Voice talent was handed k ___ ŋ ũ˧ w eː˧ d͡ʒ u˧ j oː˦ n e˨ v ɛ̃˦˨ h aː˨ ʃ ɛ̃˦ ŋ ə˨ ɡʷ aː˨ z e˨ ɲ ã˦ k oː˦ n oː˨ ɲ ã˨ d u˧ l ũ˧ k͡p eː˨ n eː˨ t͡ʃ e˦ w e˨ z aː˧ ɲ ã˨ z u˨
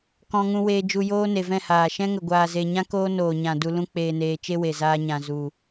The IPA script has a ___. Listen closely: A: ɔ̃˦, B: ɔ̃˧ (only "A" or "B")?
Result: B